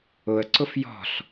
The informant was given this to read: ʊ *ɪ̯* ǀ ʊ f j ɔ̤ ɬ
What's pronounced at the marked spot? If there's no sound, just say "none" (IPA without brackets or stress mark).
ə̯